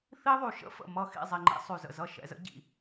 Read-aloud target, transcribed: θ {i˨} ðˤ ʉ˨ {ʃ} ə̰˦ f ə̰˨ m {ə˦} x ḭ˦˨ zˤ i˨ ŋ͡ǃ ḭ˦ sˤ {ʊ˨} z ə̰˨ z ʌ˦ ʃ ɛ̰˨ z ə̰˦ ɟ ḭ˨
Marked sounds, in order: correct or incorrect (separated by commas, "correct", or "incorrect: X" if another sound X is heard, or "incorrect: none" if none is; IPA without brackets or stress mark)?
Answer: incorrect: i˦, correct, incorrect: ʌ˦, incorrect: ʉ˨